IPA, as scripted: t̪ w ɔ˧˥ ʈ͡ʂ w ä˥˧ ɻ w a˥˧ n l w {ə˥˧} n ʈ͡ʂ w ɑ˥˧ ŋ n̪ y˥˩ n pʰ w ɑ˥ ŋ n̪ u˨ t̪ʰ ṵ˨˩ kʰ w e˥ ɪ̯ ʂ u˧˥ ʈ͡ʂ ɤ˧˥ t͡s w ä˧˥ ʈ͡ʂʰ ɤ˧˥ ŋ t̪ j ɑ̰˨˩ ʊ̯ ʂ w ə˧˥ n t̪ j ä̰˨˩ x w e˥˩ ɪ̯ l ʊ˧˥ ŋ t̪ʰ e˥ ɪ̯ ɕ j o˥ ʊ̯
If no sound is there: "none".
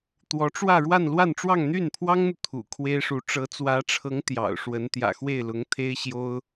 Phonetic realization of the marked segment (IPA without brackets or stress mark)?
a˥˧